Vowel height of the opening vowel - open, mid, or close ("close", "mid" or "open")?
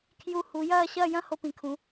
close